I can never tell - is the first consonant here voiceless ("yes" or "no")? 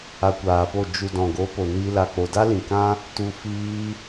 yes